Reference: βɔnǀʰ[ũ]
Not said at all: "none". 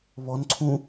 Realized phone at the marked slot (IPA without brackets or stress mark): ũ